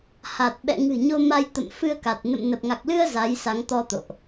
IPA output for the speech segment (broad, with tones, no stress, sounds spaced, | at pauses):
h a˨˩ t̚ ɓ ɛ̰˧˨ ŋ ɨ̤˨˩ ɲ o˧ m a˧ j t̪ ə̰˧˨ m f ɨ˧ ə̯ k a˨˩ t̚ n ə̰˧˨ m n ə˨˩ p̚ ŋ a˨˩ k̚ l ɨ˧ ə̯ z a˨˦ j s a˨˦ ŋ t̪ ɔ˧ t̪ o̰˧˨ ʔ